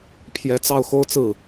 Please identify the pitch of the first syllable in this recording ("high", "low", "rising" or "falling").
rising